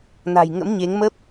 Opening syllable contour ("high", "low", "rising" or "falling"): low